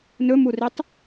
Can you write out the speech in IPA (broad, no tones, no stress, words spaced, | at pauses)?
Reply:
nɵmuritˤ